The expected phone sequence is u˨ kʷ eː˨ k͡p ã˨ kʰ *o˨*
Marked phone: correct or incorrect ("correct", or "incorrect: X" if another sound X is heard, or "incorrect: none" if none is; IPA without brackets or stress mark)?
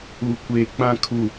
incorrect: u˨